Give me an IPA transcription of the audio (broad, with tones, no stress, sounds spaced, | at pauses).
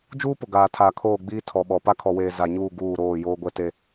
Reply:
d͡ʒ uː˦ p ʊ˨ ɡ aː˨ tʰ aː˨ kʰ oː˦˨ ɡ͡b iː˦ tʰ ɔ˨ ɓ ɔ˨ p a˦ kʰ ɔ˨ w eː˨ z a˨ ɲ uː˦˨ ɡ uː˦˨ ɾ oː˦˨ j oː˦ ɡʷ ɛ˦ t e˦